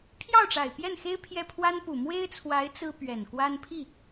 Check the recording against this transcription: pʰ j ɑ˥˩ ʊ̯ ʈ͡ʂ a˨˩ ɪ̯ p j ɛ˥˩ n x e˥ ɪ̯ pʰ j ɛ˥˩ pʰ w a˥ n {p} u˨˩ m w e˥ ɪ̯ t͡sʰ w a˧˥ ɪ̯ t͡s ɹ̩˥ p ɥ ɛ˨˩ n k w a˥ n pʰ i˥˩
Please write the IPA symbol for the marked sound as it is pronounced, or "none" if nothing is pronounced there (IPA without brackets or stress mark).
p